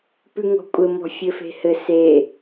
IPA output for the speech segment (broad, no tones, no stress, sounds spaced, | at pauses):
p ʉ ŋ ɔ̤ kʷʼ ɘ m ɔ̤ fʲ ɘ f e̤ h ɘ s e